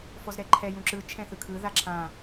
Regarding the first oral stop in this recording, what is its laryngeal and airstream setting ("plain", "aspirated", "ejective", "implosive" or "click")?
click